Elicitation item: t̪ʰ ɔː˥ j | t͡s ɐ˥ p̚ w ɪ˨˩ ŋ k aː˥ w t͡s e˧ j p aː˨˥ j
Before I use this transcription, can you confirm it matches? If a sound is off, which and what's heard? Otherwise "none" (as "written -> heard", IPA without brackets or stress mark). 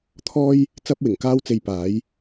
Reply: none